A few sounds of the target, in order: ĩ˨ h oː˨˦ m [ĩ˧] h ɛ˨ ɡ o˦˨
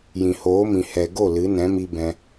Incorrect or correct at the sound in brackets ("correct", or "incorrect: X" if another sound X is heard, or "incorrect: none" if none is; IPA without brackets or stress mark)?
incorrect: ĩ˨